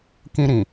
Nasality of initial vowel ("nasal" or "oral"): nasal